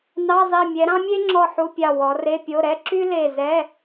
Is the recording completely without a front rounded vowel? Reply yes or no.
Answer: no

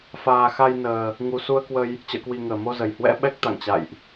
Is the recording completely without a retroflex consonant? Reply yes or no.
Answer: yes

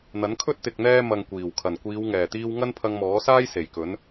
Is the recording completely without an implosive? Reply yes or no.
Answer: yes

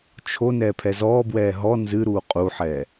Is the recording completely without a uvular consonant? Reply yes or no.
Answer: no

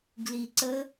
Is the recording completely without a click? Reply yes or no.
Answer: no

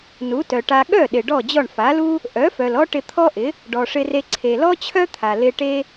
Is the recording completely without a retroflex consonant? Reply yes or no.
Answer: no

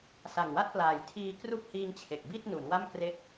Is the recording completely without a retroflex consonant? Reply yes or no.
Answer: yes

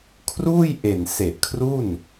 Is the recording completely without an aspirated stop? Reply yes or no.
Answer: no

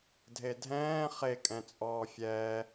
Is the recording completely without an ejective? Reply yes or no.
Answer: no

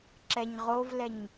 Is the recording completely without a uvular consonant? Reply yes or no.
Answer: no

